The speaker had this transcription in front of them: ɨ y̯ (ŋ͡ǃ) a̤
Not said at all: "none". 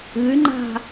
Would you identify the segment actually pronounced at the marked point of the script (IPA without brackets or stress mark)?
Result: ŋ͡ǃ